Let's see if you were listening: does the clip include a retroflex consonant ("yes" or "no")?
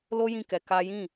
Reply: no